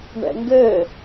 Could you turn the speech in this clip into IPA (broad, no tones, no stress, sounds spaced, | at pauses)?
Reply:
ɳ ɛ̰ ŋ ɡ ɘ